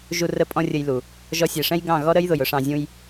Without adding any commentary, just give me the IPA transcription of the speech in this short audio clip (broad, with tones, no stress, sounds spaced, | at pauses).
ʒ u˧ r ə˧ pʼ ɔ̃˦ rʲ ə˧ j l u˨ | ʒ ɔ˧ sʲ ɛ˨ ʂ ɛ̃˦ j ɡ ɑ̃˦˨ ɣ ɔ˦ ɾ ə˦ j ð ʊ˨ j ʊ˦ ʂ ɑ̃˧ zʲ ũ˦ j